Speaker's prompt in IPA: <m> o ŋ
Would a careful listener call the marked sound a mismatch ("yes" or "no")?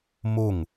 no